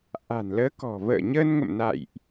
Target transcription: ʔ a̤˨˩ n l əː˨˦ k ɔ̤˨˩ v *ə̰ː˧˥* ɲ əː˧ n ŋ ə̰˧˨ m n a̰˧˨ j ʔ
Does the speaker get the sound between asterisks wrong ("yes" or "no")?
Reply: yes